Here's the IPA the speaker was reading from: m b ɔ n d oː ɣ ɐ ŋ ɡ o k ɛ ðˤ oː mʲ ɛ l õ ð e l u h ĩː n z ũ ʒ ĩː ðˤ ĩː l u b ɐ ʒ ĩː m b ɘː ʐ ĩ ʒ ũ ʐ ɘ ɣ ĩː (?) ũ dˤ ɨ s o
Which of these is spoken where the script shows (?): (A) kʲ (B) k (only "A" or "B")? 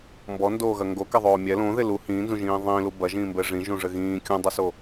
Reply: A